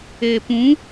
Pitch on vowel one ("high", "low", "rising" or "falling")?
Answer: low